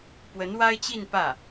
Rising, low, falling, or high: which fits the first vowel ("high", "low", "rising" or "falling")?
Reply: rising